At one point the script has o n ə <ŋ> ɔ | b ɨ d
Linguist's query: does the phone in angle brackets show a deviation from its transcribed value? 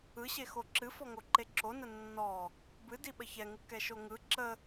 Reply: yes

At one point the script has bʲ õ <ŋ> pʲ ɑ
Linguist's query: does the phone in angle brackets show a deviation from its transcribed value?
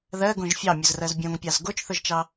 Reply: no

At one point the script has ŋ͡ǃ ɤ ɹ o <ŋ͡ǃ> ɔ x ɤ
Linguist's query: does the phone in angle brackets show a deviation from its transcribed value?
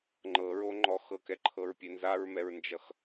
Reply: no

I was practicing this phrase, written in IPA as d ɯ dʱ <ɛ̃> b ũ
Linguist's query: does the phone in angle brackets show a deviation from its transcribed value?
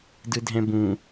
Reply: no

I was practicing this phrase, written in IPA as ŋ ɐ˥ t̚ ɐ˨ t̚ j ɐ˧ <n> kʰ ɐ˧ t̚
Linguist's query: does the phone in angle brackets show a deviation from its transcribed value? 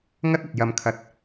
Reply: yes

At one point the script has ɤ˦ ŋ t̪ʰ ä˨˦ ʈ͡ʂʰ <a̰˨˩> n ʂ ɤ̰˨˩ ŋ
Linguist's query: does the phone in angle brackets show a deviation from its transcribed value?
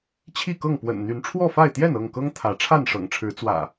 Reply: yes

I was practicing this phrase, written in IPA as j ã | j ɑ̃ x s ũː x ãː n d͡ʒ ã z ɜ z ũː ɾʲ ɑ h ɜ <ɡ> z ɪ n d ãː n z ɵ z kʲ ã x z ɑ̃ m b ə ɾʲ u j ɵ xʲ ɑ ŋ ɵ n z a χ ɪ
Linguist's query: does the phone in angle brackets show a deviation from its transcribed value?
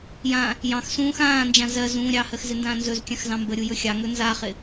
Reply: yes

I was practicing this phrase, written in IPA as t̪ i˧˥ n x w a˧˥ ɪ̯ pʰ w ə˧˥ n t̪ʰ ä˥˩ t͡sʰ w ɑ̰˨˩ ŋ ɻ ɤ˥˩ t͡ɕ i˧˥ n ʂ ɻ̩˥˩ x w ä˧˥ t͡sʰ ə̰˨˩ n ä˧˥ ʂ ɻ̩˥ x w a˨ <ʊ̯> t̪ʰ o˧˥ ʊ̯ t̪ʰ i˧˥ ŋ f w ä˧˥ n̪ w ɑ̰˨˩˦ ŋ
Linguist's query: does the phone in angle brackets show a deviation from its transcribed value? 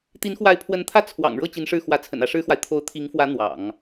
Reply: yes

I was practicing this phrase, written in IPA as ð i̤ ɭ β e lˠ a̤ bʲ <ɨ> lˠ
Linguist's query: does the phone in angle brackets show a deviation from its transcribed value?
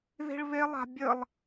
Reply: yes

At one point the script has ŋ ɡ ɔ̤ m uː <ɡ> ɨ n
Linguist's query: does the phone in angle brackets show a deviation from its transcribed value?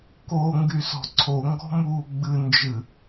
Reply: yes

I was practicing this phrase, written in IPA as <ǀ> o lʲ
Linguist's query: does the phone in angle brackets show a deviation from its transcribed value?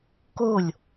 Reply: yes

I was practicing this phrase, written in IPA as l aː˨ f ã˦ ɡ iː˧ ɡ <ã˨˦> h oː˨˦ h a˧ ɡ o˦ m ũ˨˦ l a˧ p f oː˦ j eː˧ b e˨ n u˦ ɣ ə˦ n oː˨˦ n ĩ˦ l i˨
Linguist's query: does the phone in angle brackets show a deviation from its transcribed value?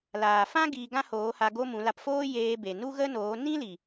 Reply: yes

